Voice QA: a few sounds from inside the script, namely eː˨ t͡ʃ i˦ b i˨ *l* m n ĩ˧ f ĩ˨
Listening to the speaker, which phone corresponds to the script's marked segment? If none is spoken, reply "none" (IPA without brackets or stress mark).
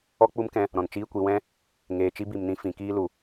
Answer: none